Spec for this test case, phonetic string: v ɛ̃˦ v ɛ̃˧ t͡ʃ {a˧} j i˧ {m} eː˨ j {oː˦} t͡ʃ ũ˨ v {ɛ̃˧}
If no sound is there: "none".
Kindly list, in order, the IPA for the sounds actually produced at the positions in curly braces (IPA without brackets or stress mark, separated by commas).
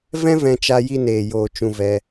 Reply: a˧, n, oː˨, ɛ˧